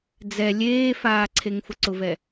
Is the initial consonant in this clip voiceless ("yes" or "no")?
no